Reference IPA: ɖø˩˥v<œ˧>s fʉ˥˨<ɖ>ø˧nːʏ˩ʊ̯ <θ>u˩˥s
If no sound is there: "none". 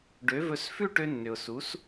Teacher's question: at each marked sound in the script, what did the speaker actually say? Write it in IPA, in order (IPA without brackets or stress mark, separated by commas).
ɵ˧, ʈ, s